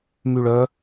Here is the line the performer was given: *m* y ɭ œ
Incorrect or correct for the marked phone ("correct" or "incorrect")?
correct